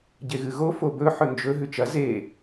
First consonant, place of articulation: palatal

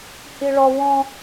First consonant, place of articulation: glottal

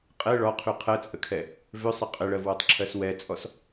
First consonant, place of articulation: uvular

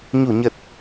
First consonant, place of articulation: palatal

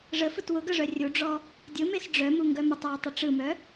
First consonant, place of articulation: retroflex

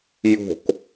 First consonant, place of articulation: palatal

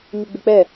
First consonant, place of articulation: palatal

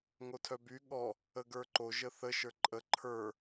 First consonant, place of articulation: velar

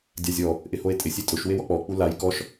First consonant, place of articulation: alveolar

